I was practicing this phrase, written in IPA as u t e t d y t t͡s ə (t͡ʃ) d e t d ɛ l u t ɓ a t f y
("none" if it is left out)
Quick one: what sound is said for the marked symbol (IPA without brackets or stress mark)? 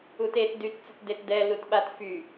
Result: t